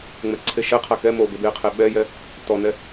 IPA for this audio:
ŋ͡m ɛ ǀʰ e ʃ ɛ qʰ a k ɛ m o b e b e qʰ e ɓ ɛ j ɛ | t ɔ n ɛ

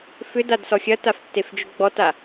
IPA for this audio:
f ʏ d a d s ɔ xʲ ɐ t a f tː e f d͡ʒ ʏ ɡ͡b ɔ t a

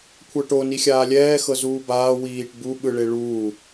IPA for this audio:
kʷʰ ɤ ʈ o n i xʲ aː lʲ ɛː x ɤ z uː b aː w iː ʈ b u ɓ ɯ ɭ e ɭ uː

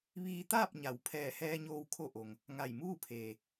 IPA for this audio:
ʋ iː˧ t̪ aː˥˨ p̚ ɲ a˩˧ w pʰ ɛː˧˩ h ɛː˧ ɲ oː˧ w kʰ o˧ ʔ o˩ ŋ | ŋ a˧˩ j m uː˥˨ pʰ eː˩

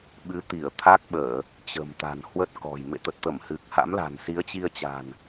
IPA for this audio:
ɓ ɨ˨˦ t̪ i˧˩ ə̯ t̪ʰ a˦˥ k̚ ɓ əː˧˩˨ | t͡ɕ ə̤˨˩ m t̪ a̤˨˩ n h w ə˦˥ t̚ k ɔ̤˨˩ j m ḛ˧˨ t̪ ə˨˩ t̚ t̪ ə˧˩ m h ɨ˨˩ k̚ h a̰˧˥ m l a̤˨˩ n s i˨˦ ə̯ t͡ɕ i˧ ə̯ t͡ɕ a̤˨˩ n

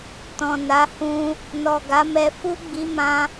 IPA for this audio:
t ɔ̃˨ n a˨˦ h ũ˧ | n ɔ˨ ɡ a˨˦ m ɛ˧ f u˦ ɡ͡b i˧ m ã˧

